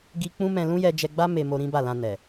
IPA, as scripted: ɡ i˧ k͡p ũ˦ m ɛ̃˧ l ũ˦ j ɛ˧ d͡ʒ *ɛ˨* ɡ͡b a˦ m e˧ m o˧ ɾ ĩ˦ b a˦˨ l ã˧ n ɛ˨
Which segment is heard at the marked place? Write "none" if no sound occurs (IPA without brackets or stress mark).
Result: ɛ˧